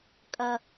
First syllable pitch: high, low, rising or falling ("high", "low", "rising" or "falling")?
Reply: high